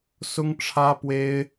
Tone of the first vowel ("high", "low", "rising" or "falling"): high